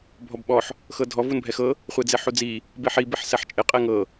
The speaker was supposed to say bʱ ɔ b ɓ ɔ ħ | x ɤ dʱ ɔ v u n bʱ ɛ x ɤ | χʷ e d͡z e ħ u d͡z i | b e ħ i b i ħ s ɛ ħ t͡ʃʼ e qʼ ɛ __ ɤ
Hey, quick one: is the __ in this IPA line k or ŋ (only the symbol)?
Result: ŋ